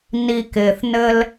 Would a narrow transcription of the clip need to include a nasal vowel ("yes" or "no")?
no